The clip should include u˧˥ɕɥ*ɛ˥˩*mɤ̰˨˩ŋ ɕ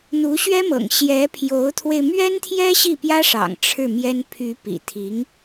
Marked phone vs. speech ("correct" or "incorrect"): incorrect